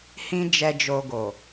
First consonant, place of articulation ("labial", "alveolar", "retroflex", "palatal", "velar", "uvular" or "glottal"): glottal